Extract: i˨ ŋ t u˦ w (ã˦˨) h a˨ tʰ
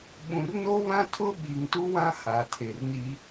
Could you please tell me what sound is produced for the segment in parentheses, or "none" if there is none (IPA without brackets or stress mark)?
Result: ã˦